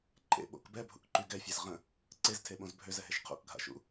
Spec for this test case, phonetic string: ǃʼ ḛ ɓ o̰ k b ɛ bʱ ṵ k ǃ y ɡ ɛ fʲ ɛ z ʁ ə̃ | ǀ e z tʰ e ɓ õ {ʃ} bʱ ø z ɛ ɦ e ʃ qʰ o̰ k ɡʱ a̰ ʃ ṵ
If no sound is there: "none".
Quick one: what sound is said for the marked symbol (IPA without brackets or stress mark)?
z